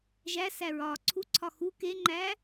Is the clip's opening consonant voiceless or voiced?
voiced